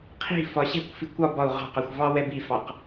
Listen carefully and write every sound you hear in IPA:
qʰ i̤ f ɒ ɕ ɛ̤ kʷ f i kʷ ɒ b ɒ u̯ ʁ ɑ̤ q ɑ xʷ v ɑ w ɛ b i f ɑ q

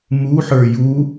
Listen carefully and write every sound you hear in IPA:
m u ħ ə˞ j u

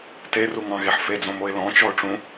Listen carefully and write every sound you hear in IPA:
t e r u ŋ ɑ̃ ɣ e ħ f e d͡z õ m o ɪ̯ l ɔ̃ t͡ʃ ɔ ʊ̯ ʈ͡ʂ ũ

